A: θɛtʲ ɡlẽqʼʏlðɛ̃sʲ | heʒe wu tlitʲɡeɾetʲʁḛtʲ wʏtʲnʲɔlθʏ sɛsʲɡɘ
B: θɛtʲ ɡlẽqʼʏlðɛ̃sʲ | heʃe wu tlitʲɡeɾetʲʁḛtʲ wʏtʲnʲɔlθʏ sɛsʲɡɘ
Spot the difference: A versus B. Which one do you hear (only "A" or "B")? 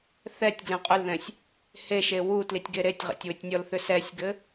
B